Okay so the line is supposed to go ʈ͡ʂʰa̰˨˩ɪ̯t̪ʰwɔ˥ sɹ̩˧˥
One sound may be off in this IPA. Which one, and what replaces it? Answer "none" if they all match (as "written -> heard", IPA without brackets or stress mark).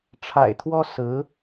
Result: none